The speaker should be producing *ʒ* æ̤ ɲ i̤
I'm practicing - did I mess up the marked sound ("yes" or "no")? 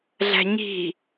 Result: yes